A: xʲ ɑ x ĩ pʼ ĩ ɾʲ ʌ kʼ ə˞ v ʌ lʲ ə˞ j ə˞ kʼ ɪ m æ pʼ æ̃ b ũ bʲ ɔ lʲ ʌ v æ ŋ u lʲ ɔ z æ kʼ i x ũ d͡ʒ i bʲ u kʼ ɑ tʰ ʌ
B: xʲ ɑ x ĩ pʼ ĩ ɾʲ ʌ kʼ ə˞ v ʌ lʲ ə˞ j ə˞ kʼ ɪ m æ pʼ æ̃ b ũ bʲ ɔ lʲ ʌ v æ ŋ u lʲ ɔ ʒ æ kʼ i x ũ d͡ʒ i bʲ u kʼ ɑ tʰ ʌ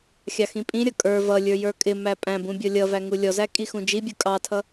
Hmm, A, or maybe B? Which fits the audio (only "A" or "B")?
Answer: A